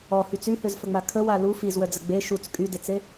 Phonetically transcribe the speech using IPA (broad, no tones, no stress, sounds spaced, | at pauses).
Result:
ɔ h y t͡s y h ø z f ə ŋ͡m a kʰ ə w a l u f i z w œ d͡z ə ɡ͡b e ʃ u t͡s kʼ y d e t͡s e